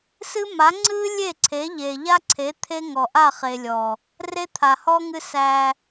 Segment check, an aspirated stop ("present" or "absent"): present